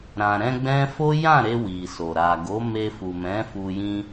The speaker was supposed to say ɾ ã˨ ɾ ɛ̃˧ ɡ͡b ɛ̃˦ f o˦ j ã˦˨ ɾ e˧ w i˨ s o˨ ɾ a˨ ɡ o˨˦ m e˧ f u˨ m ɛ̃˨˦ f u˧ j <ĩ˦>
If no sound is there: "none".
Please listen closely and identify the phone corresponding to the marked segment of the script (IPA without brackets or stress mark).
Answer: ĩ˦